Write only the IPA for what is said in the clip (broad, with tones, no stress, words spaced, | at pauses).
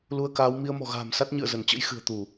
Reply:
lu˧ə̯kaː˨˦w mi˧ə̯mɔ̤˨˩ɣa̤ː˨˩msa˦˥t̚ ɲɨ̰˧˨ə̯zə˧˩nt͡ɕə̰˧˥j xɨ̤˨˩ə̯t̪u˧˩˨